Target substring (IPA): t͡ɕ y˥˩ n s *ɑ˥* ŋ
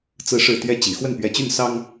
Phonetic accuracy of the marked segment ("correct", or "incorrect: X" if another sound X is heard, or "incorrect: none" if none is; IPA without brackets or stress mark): correct